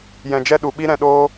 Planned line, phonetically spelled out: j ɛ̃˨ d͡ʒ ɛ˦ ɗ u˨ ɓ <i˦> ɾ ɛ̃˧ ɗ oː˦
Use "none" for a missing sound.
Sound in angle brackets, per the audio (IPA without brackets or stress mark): i˦